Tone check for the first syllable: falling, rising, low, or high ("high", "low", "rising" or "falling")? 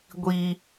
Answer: high